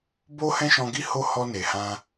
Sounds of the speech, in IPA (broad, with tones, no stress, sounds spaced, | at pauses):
b o˦ h ɛ̃˦ ʃ ɔ̃˧ ɡ i˦ h o˦ h ɔ˦ n e˧ h ã˦